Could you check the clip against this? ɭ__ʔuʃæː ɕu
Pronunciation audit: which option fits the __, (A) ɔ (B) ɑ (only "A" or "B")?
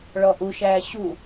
A